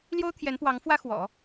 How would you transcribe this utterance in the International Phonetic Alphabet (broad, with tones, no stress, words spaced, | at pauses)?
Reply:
ljo˥ʊ̯ t̪ʰjɛ˧˥npwɑ˧˥ŋ fwä˥xwɔ̰˨˩˦